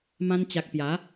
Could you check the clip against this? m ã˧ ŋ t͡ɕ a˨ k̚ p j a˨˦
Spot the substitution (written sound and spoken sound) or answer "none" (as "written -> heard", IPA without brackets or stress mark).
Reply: ŋ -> n